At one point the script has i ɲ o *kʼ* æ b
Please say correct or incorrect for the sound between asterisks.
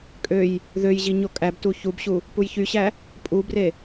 correct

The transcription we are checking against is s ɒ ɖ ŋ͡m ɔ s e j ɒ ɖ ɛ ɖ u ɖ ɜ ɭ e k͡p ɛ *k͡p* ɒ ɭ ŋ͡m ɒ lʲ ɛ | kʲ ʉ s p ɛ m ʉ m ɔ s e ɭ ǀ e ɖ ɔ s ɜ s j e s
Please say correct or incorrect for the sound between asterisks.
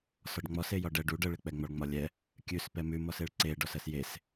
incorrect: ŋ͡m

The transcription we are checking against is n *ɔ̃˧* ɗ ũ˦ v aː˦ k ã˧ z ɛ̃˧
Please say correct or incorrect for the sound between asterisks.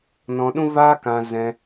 correct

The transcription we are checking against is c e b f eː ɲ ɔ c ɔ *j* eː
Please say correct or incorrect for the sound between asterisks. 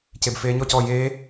correct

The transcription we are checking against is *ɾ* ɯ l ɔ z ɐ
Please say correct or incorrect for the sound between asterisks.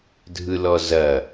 incorrect: dʱ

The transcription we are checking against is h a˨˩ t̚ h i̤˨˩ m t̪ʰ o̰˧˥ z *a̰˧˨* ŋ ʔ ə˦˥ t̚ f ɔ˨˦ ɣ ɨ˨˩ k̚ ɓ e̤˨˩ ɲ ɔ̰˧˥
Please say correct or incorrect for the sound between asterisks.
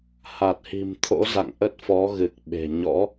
correct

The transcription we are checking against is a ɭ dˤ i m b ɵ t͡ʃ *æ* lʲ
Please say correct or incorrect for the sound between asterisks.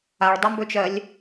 incorrect: ɜ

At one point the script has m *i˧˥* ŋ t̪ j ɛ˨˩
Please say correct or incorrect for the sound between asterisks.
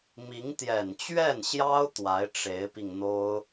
correct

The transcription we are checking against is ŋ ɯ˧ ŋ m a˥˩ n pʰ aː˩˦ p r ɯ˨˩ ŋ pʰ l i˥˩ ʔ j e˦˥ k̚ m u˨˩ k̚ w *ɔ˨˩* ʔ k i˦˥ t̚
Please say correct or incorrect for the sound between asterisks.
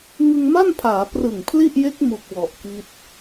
correct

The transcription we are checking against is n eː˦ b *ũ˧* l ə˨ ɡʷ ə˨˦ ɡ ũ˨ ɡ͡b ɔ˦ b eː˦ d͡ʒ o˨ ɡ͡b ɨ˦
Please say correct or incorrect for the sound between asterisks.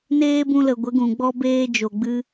correct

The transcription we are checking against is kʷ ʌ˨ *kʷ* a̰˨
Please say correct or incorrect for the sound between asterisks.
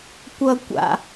correct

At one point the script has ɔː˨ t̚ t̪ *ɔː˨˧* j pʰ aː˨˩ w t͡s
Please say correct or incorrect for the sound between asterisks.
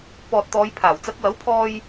correct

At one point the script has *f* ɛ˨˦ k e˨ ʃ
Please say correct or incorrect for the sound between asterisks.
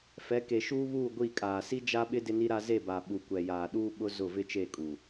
correct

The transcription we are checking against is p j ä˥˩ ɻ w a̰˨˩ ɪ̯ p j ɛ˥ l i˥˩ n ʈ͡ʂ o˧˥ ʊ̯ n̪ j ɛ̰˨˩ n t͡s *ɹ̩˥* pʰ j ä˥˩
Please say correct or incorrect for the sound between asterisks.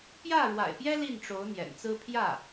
correct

